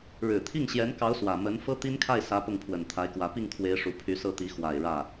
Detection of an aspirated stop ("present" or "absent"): present